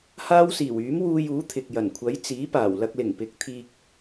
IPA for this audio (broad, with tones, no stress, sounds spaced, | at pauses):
h aː˥ w s iː˨˩ w yː˨˥ m w uː˧ j uː˨˥ t̪ʰ ɪ˨ k̚ j ɐ˨˩ n kʷʰ ɐ˨˥ j t͡s iː˨˥ p aː˨˩ w l ɐ˧ k̚ l ɪ˨˩ ŋ p ɪ˨ k̚ t̪ʰ iː˧ k̚